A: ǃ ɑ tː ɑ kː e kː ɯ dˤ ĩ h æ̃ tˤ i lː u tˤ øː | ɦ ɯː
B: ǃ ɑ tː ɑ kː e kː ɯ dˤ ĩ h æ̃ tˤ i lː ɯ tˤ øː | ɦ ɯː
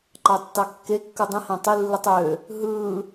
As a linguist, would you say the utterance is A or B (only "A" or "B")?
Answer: B